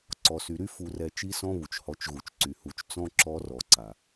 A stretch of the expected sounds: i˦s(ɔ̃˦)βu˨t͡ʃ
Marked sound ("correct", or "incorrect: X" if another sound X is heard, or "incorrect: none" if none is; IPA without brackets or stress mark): correct